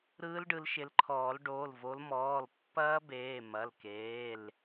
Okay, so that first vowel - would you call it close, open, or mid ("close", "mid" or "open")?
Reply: close